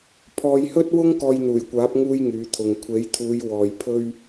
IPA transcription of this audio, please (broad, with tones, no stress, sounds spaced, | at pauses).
pʰ ɔː˧ j h ɵ˥ t̚ w ʊ˥ ŋ k ɔː˧ j n̪ uː˨˩ j kʷ aː˨˥ p̚ ŋ uː˥ j ŋ yː˨˥ t̪ʰ ʊ˨ ŋ kʷʰ e˨˥ j t̪ʰ uː˨˧ j w ɔː˨ j pʰ ɵ˧ ɥ